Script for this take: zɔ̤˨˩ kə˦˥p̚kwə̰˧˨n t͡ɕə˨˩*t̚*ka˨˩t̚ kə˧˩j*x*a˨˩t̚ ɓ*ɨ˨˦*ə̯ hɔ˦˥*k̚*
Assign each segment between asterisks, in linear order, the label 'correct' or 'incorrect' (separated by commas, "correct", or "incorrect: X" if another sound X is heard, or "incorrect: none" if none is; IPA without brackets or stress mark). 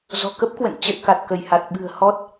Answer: correct, incorrect: h, incorrect: ɨ̤˨˩, incorrect: t̚